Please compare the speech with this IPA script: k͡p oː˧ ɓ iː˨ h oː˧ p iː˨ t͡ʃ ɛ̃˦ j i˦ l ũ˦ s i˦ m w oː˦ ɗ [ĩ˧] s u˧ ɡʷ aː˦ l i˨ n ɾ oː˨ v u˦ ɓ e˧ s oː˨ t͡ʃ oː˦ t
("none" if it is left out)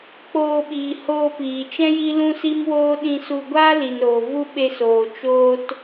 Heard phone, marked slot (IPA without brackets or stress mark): ĩ˧